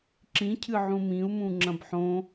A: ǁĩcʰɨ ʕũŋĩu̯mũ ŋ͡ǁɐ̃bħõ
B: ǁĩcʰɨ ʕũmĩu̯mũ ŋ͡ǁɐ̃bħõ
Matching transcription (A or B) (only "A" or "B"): B